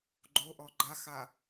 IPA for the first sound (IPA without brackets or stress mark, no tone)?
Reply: ɡ͡ǃ